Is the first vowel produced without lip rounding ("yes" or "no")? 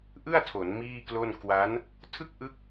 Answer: yes